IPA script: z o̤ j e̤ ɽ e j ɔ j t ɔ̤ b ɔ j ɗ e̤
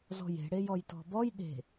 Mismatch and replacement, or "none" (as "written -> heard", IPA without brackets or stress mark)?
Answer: o̤ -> ɔ̤